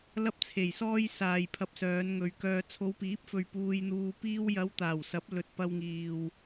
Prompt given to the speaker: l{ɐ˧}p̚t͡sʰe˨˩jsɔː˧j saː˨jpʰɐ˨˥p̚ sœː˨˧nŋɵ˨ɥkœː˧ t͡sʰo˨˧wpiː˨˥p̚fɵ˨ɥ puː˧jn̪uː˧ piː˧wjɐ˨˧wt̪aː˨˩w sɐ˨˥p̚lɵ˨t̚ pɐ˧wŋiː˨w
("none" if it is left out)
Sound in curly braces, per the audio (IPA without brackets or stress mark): ɐ˧